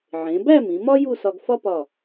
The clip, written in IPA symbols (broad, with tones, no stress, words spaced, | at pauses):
ʕẽ˩˧bæ˥˧ mĩ˩˧mɒ˥ ju˥˧sɒ˧ɡfɒ˥pɒ˧˩